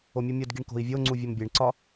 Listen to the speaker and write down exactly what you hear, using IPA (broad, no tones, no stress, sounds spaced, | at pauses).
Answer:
o mʲ u mʲ o d ɡ i ɳ k o̤ i̯ vʲ o ŋ͡ǀ u vʲ o m bʲ e ɳ ǀ ɒ